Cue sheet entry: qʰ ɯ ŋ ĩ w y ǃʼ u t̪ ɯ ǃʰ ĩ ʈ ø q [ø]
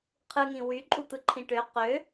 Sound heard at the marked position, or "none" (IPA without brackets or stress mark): ø